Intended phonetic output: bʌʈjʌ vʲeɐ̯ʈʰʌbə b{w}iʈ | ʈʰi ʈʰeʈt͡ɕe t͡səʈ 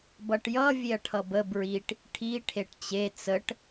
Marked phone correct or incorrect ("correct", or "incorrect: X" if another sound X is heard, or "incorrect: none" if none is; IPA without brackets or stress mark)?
incorrect: ɹ